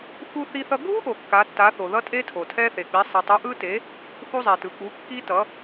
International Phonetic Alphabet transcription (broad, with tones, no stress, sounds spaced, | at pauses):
x u˦˥ θ i˦˥ θ ʌ˦˥ ɡʱ u˦˥ ʔ o˩ kː a˩˥ tː a˩˥ θ o˩ ð ʌ˦˥ tʼ e˦˥ tʰ o˩ tʰ ɛ˦˥ θ e˩ k͡p i˩˥ sˤ i˩ tˤ u˩˥ ʔ ɯ˦˥ t e˩˥ | θ u˦˥ zˤ ɛ˩ t ɯ˩ k͡p u˩˥ kː i˦˥ t ʌ˩˥